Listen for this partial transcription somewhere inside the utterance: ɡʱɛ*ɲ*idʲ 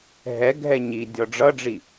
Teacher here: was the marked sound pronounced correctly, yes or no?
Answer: yes